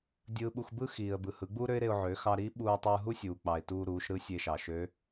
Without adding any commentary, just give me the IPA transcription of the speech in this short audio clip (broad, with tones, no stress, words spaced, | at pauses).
dʲɯː˧ɓu˧x bɯ˥ xiː˩ə̯bɯ˩ hɯ˩˧ɡ͡buː˥ɾø˥ɪ̯ɾe˧ʊ̯ ʕø˩˧xɑ˧ɾiː˧˥ ɓuː˧tˤɯː˧ ɦu˥sʲuː˩k͡pɑ˩ɪ̯ tuː˧ɾuː˩˧ʃɾɯ˧˥ sʲe˧ʃɑ˩ʃø˧˥